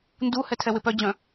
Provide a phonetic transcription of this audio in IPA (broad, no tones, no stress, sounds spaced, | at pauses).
n d u h ɛ tʰ ɛ w ɪ p œ d͡ʑ œ̃